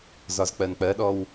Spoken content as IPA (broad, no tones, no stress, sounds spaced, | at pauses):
z ɒ z k͡p ɜ n k͡p ɜ ɗ ɔ w